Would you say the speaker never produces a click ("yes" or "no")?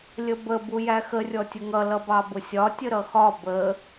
yes